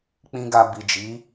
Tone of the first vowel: high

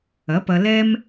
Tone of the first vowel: rising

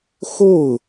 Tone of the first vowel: falling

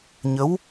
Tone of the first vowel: rising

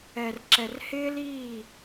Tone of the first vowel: low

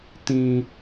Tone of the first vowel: low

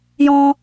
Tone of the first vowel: high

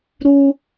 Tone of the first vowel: high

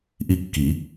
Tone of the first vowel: falling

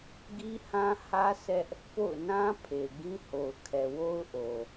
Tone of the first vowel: high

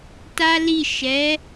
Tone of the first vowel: high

